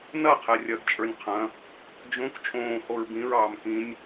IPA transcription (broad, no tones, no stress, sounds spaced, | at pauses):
n ɐ qʰ ɛ rʲ ɐ ɡ t͡ʃʼ ə˞ nʲ qʰ ɐ̃ | d͡ʒ õ k t͡ʃʼ õː h o ɹ b ĩ ɹ ɑː m k ĩ nʲ